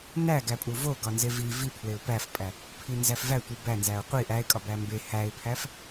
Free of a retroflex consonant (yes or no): yes